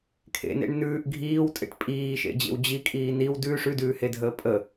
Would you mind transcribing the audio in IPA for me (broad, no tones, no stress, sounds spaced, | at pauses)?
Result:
kʰ ḛ n ḛ ɳ n ʉː ʔ ɡʱ iː w tʼ ḛ ʈ pʼ iː ʃ ḛ d͡ʑ ḛ w d͡ʑ i kʼ iː n i w d ʉ ʂ ʉ d ʉː h e dʱ əː pʼ ə